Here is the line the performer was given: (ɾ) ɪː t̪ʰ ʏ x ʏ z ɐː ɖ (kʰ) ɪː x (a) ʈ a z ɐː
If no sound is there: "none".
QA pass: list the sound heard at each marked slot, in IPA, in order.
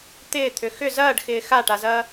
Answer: t̪, x, a

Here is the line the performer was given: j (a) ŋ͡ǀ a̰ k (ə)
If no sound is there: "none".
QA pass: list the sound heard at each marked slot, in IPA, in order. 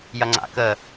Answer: ɐ, ə

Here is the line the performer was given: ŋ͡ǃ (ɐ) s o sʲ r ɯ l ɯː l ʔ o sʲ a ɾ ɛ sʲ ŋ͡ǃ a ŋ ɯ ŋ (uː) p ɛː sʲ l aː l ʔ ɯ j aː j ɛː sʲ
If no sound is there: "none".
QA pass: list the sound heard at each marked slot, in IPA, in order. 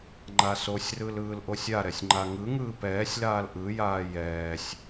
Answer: a, ɯː

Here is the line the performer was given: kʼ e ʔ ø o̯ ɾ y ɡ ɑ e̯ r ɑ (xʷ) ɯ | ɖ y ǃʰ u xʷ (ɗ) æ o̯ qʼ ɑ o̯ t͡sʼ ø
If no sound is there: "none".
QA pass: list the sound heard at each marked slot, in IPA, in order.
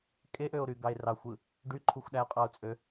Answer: xʷ, ɗ

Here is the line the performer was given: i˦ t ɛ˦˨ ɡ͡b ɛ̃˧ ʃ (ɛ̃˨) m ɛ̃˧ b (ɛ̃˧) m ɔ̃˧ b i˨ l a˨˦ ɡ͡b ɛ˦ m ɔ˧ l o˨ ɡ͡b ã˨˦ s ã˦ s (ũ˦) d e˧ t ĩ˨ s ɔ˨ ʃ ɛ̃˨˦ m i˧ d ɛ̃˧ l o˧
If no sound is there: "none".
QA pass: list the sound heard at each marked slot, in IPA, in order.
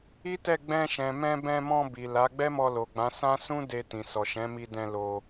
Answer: ɛ̃˨, ɛ̃˧, ũ˦

